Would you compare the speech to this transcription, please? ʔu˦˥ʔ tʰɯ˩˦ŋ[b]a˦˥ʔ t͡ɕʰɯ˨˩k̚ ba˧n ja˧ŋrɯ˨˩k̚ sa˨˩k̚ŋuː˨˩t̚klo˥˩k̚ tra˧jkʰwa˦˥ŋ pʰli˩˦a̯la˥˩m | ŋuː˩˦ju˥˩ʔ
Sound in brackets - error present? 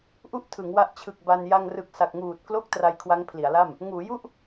yes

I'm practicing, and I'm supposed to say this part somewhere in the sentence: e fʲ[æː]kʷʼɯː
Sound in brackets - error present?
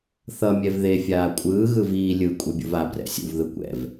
yes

